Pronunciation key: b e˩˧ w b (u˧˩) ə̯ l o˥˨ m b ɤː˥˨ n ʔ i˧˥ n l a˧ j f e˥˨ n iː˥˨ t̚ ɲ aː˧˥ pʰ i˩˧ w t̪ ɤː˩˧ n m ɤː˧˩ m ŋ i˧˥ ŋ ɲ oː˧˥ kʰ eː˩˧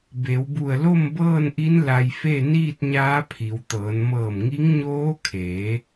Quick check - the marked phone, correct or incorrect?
correct